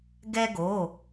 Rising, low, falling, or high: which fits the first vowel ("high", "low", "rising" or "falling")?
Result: high